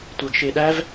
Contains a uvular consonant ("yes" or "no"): no